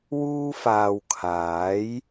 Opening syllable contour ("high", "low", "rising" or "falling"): high